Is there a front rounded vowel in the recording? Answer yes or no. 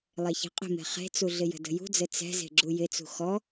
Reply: no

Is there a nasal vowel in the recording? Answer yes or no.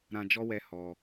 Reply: yes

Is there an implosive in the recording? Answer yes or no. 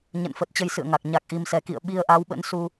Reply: yes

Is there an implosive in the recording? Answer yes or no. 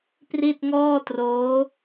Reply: no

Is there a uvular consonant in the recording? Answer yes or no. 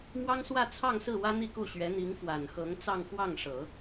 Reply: no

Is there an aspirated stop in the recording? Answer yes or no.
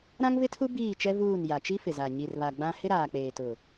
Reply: yes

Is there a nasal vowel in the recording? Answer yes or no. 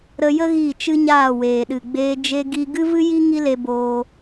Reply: no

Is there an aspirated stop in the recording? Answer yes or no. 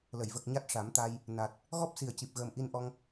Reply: no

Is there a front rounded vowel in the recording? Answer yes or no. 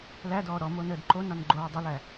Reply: no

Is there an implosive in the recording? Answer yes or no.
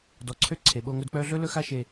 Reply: yes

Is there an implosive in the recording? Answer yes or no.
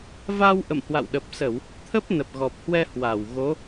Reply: yes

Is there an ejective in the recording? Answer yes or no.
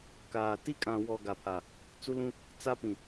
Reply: yes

